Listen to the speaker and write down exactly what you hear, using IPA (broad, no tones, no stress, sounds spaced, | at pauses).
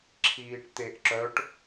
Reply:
ǁʰ iː ʈ t̪ e ʔ ǁ œ ʈ